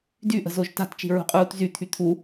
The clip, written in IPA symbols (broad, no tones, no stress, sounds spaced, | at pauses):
d y ʔ ə̤ z o ʒ t a̤ t t͡ʃ i̤ ɹ ṳ qʼ uː t z y t̪ʰ y t̪ʰ u